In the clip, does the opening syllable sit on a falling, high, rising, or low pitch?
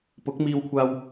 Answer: rising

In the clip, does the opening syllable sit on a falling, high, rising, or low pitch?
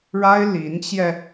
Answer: high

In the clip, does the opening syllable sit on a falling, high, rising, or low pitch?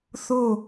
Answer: falling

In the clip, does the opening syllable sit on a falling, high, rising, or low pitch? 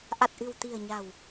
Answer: low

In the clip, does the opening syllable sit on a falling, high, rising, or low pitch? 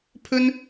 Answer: high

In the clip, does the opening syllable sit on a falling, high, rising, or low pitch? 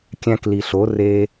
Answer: high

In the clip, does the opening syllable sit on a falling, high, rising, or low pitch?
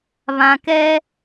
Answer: low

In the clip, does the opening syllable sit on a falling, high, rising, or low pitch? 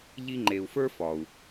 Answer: high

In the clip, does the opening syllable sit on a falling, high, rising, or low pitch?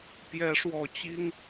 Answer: rising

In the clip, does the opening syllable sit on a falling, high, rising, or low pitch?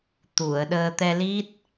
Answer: low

